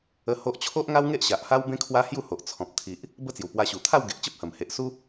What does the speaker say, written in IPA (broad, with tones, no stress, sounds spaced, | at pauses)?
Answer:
ə˧ h o˦ ʔ t͡ɕʰ o˦ ʔ ŋ a˦ w ŋ e˦ ʔ ɕ a˨ ʔ h a˦ w b ẽ˦ kʰ w a˦ h j u˥˧ h o˨ ʔ t͡sʰ ɔ̃˨ p̚ t̪ʰ i˨ ʔ | b ə˦ t͡s j u˨˩ p w a˧ ɕ u˨˩ t̪ʰ a˥˧ w ɡ e˨ ʔ t͡ɕ ə˦ p̚ h ə˨˩ m h e˨ ʔ s u˦